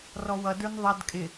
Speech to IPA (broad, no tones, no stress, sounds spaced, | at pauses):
r ɔ w ʌ d ə˞ n ðˤ ʌ d kʼ ɪ